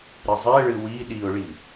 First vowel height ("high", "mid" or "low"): high